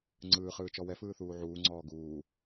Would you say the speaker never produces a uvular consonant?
no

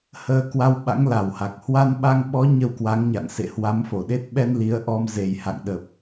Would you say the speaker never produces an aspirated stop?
yes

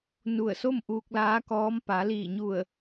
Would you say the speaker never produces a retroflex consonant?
yes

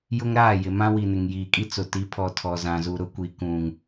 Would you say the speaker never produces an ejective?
no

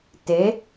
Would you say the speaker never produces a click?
yes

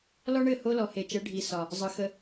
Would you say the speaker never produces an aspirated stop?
yes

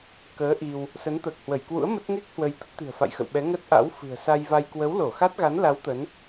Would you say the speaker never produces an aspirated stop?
yes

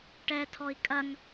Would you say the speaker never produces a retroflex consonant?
no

